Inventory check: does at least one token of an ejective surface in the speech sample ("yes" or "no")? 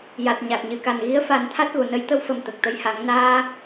no